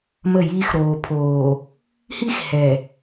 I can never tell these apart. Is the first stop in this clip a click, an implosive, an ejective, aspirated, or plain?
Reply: aspirated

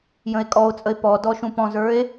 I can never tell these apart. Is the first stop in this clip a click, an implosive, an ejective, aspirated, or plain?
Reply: ejective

